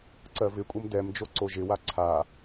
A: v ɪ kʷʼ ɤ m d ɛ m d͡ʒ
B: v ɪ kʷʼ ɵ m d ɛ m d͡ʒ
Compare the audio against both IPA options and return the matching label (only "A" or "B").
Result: A